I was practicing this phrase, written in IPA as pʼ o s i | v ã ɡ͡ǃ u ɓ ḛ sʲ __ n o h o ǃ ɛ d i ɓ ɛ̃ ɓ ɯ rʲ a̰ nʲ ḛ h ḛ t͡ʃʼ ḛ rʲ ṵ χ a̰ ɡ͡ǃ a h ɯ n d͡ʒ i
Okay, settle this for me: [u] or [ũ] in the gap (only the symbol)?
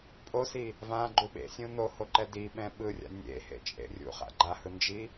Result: ũ